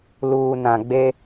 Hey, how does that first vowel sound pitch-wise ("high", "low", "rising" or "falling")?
low